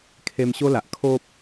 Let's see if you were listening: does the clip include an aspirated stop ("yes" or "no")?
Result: yes